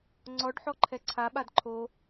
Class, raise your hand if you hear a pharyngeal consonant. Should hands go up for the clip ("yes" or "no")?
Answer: yes